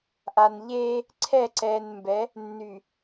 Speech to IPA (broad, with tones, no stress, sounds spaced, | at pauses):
ʔ a˨ n ʎ eː˦ | ǀʰ ɛ˦˨ ǀ ɛː˨ n m b ɛ˨˦ | nː y˨